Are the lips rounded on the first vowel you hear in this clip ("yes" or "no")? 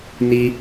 no